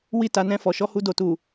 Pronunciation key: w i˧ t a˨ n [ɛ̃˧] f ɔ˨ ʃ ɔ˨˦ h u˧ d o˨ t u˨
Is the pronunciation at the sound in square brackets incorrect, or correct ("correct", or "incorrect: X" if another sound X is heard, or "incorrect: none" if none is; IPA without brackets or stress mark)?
correct